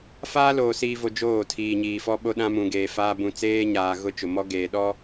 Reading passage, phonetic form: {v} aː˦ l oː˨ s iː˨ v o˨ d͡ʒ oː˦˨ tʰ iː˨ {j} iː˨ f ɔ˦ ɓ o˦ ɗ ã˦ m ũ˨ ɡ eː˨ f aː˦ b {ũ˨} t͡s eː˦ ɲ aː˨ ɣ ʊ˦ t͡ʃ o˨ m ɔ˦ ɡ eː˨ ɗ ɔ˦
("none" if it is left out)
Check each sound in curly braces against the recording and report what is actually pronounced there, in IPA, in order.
f, ɲ, ũ˨

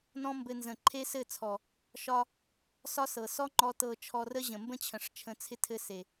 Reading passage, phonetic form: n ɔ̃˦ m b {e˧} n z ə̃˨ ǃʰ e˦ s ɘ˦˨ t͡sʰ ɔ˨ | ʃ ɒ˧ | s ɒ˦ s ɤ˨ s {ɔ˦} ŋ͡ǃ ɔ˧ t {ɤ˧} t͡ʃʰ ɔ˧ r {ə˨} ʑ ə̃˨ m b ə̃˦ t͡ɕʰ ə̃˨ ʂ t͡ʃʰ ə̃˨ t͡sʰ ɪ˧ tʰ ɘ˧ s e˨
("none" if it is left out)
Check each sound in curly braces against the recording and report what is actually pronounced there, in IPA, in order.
ɘ˧, ɔ˦, ɤ˧, ə˦

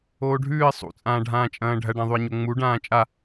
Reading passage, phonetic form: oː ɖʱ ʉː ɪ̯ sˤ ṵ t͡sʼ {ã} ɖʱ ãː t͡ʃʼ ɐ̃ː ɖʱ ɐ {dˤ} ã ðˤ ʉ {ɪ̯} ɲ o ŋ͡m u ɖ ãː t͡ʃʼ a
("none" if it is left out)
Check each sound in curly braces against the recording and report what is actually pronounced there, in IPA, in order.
ãː, ɖ, ɪ̯

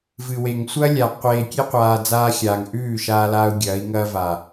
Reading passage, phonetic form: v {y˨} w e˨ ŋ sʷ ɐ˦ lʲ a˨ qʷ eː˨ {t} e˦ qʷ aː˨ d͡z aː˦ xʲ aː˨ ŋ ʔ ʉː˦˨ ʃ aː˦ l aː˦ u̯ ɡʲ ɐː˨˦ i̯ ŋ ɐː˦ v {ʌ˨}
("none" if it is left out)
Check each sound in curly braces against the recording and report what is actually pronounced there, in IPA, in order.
ɨ˨, kʲ, a˨

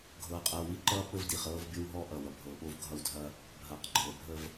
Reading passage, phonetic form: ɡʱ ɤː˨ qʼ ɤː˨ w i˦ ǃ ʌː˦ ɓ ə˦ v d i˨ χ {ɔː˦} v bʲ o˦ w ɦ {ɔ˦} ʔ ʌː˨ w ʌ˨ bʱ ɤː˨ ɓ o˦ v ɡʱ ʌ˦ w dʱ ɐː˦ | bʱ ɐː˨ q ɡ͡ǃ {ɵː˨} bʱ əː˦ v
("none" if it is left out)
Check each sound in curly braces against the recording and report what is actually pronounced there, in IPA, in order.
ɤː˦, ɔ˦, ɤː˨

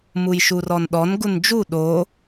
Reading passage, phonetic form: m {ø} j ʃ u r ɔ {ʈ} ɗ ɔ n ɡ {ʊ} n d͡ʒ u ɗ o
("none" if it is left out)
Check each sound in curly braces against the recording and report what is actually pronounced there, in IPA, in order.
u, n, u

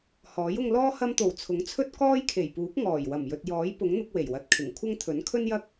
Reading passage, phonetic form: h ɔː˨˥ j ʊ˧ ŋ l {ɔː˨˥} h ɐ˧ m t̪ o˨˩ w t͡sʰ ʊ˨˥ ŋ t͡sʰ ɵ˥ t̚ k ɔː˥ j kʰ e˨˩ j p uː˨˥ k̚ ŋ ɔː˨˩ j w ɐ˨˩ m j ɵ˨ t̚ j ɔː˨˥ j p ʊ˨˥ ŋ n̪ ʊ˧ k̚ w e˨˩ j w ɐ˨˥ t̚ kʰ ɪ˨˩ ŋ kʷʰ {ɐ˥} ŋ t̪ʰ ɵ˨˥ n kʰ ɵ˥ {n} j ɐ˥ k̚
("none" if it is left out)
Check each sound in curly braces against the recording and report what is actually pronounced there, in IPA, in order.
ɔː˥, ɐ˥, n

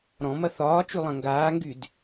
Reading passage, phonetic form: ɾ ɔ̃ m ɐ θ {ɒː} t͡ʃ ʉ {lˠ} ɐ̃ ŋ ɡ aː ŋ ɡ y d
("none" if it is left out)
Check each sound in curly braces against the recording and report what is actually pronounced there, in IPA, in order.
ɒː, lˠ

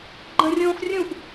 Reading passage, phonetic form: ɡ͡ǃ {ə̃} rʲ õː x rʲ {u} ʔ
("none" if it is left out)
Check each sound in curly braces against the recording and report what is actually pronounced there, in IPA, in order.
ə̃, ũ

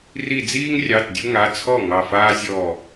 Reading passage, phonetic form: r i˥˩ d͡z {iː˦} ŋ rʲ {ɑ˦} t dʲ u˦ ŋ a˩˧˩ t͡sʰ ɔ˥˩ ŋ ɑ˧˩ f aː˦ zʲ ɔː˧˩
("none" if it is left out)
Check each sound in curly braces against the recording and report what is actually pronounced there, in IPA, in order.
iː˦, ɑ˩˧˩

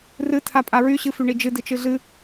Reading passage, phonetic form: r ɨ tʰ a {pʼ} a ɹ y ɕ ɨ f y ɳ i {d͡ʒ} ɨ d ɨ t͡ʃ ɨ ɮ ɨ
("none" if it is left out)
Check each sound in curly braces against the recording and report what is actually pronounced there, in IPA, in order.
pʼ, d͡ʒ

